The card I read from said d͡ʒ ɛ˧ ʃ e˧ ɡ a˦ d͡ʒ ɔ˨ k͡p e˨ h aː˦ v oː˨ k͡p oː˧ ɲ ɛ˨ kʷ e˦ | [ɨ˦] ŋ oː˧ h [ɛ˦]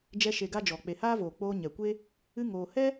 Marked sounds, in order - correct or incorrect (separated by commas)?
correct, correct